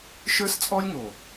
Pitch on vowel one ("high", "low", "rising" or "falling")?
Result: high